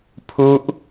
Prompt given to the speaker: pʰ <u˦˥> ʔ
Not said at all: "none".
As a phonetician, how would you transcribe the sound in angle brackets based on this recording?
u˦˥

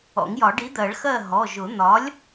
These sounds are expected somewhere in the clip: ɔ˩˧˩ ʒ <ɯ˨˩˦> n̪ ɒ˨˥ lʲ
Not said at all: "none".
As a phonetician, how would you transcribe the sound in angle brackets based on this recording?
ʊ˨˩˦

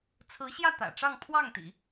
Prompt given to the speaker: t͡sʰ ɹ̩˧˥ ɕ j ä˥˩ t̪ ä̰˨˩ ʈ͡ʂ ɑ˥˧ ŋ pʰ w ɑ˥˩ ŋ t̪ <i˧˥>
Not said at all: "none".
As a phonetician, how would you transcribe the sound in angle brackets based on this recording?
ḭ˨˩˦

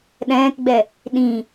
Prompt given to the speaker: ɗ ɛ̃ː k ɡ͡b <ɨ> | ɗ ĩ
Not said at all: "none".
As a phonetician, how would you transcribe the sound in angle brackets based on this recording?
ɛ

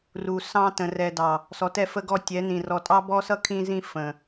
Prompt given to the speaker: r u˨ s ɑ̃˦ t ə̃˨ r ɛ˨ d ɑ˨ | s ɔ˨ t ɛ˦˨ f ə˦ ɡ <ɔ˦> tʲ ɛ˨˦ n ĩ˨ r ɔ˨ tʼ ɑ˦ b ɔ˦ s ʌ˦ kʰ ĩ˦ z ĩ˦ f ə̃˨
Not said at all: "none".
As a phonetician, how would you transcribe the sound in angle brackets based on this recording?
ɔ˦˨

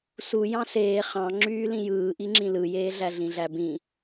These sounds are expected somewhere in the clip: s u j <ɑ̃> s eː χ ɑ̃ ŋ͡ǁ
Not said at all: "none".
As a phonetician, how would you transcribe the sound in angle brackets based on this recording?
ɑ̃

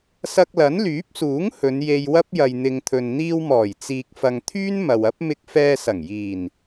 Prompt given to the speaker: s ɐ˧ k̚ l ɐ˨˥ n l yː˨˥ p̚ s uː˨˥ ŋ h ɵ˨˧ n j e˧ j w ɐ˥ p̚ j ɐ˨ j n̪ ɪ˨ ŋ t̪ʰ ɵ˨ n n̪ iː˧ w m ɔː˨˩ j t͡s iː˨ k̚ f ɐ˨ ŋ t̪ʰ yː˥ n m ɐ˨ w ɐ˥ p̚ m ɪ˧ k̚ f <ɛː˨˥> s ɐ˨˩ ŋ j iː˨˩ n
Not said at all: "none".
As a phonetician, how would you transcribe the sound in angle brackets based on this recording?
ɛː˧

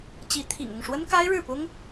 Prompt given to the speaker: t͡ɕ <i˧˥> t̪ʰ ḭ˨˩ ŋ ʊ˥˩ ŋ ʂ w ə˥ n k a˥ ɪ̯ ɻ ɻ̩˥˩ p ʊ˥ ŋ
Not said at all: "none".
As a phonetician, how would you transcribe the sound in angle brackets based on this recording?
i˧˥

